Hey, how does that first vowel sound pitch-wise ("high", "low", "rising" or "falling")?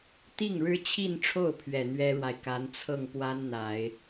falling